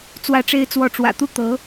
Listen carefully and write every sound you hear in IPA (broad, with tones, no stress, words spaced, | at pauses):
t͡swä˥ʈ͡ʂe˥ɪ̯t͡swɔ˥˩ ʈ͡ʂwä̰˨˩t̪u˥ t̪ɤ˧˥